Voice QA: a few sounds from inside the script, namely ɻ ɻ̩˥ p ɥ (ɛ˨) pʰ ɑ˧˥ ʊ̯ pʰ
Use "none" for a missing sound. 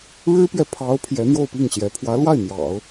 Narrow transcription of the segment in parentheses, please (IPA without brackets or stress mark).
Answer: ɛ˨